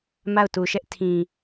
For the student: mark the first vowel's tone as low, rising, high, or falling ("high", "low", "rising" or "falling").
falling